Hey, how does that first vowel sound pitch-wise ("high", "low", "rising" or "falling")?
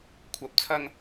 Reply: rising